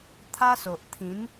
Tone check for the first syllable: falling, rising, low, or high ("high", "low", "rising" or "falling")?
high